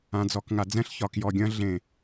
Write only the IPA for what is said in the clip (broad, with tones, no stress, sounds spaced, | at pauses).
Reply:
ã˨ d͡z ɔ˨ k ŋ a˨ d͡z ɛ̃˦ ɬ ç ɒ˨ k j ɔ˨ ɡʲ ɐ̃˦ ɮ ẽ˨